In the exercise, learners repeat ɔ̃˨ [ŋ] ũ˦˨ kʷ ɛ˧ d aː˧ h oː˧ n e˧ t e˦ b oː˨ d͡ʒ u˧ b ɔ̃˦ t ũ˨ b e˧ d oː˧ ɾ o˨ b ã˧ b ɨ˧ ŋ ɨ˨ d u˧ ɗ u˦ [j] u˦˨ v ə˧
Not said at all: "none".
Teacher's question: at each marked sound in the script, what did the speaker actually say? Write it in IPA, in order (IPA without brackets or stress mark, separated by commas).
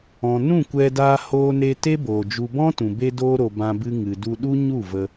n, ɲ